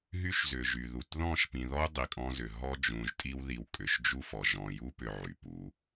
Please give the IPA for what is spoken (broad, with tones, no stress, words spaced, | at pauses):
ɦy˦ʃzʏ˨ʒy˨ðu˨t ðɔ̃˦˨ʃpĩ˨ðɔ˦u̯ dˤi˨kʼɔ̃˦zʏ˨ ɦɔ˦d͡ʒũ˨ʒtʼi˦w ði˨wkʼʏ˨ʃ d͡ʒu˦fɔ˨ ʒɔ̃˨ju˦pʏ˨ ʕy˨pu˨˦